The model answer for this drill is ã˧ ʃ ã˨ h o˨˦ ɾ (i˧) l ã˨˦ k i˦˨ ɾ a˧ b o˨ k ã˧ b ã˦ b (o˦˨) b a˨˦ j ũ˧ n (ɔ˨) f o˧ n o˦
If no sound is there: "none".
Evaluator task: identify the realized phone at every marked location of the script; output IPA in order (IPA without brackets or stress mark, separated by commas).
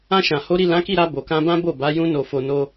i˦˨, o˦˨, o˨